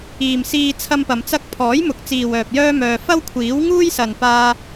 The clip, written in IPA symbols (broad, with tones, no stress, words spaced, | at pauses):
iː˨msiː˧ t͡sʰɐ˥mpɐ˧mt͡sɐ˥k̚ pʰɔː˨˥jmʊ˨k̚ t͡siː˨wœː˨p̚ jœː˥mœː˧ fɐ˥wkʷʰiː˨˥w ŋuː˥jsɐ˨npaː˧